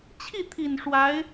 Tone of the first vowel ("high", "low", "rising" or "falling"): falling